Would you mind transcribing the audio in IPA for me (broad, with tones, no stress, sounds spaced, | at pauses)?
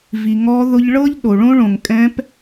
v i˩ ŋ ɔ˧˥ ð ʊ˧ ʎ ɭ ɤ˥ ʎ ɗ o˩ ɭ õ˥ ɭ õ˩ ŋ kʼ ɛ̃˧˥ p